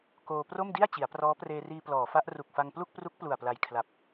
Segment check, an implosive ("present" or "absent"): absent